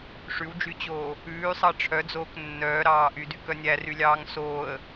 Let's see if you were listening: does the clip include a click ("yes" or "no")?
no